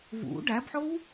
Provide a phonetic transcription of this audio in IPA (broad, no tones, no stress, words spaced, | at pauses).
vṵ ɖæbħow